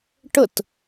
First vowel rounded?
no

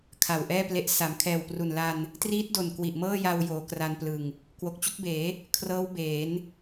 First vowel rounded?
no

